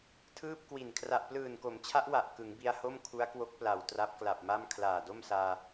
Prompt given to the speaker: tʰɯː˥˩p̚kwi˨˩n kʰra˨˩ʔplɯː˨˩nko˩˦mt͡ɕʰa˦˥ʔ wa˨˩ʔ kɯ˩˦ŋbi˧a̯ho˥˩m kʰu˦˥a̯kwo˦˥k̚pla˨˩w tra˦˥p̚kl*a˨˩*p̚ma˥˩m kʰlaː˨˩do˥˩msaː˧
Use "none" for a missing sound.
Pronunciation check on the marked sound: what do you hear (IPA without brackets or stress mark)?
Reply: a˨˩